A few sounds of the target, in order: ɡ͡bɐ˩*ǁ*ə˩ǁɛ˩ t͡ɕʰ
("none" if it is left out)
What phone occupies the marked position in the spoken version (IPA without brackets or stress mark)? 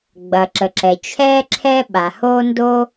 ǁ